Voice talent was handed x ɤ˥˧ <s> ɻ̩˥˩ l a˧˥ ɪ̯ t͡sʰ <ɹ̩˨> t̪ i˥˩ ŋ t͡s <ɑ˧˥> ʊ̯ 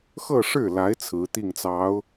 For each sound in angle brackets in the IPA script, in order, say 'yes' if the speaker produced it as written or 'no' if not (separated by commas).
no, no, yes